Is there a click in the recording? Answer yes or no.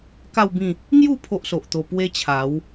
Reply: no